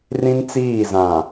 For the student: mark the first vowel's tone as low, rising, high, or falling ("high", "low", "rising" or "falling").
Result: high